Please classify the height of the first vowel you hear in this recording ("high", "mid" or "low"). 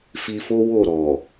high